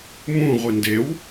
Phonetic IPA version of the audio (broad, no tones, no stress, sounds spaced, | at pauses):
m ũ ʁʷ i n d e w